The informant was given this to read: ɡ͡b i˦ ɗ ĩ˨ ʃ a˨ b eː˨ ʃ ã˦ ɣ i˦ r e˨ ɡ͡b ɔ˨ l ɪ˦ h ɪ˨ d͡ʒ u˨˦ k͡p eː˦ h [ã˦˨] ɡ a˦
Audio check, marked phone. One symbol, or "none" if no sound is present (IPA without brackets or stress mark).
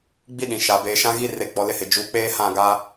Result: ã˦˨